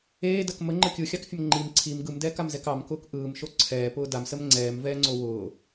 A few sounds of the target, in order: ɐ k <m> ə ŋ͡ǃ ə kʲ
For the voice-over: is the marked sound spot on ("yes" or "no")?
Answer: yes